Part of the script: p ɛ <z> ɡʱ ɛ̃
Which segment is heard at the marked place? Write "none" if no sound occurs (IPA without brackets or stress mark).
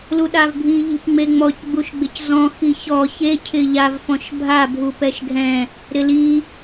ʃ